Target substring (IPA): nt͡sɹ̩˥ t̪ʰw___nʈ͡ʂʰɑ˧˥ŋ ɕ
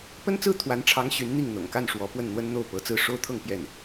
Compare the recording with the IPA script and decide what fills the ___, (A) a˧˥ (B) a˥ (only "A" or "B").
A